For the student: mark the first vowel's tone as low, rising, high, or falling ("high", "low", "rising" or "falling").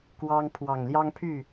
high